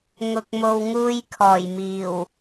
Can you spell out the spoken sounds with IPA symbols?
ŋ ʊ˨ k̚ m o˨ w ŋ uː˧ j kʰ ɔː˨˩ j m iː˨˩ w

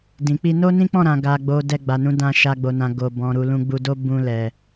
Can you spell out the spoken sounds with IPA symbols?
d ĩ˨ k͡p i˧ n o˦ n ĩ˦ k͡p ɔ̃˦˨ ɾ ã˨ ɡ a˨ ɡ͡b o˨ d ɛ˧ ɡ͡b a˨ n ũ˨˦ d ã˧ ʃ a˦ ɡ͡b o˧ n ã˧ ɡ o˨ b ɔ̃˨ ɾ u˨ l ũ˧ ɡ͡b u˧ d o˦ b ũ˧ l ɛ˨

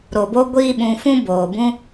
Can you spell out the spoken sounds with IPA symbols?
ɾ o˨ b o˦ ɡʷ i˦ ɓ ũ˧ f ũ˦ b oː˨ b ũ˦

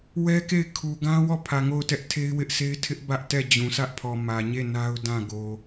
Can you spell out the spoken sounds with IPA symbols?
w ɛ˦ k e˦˨ ɪ̯ kʰ u˨ ɡ ã˦ w ɔ˦˨ pʰ ä˨ ŋ o˦˨ ʊ̯ t ɛ˦ ʔ tʰ e˦ ɪ̯ w ɪ˦ ʔ sʰ e˦ ɪ̯ tʰ ɪ˦ ʔ b ä˦ ʔ t ɛ˦˨ d͡ʑ ũ˨ sʰ ä˦ ʔ pʰ ɔ˨ m ä˨ ɲ e˦˨ n a˦ ʊ̯ d ã˦˨ ɡ o˨

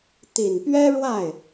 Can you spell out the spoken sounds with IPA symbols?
t̪ i˨˩ n p ɥ ɛ˥ ɻ w a˥˩ ɪ̯

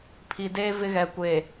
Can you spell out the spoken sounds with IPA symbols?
pʰ i˨ d eː˦ v ɪ˦ ɣ ɛ˨ kʷ eː˨

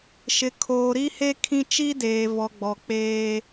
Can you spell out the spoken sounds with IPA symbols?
ʃ ɪ˨ kʰ oː˨ ɾ i˦ h e˦ kʰ ĩ˦ t͡ʃ i˦ d eː˨ v ɔ˨ ɡ͡b ɔ˨ k͡p eː˦

